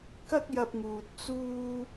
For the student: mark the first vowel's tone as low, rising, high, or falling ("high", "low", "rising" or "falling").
high